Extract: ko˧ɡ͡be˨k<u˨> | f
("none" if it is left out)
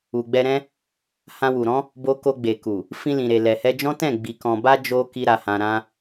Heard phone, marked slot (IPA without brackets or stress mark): u˨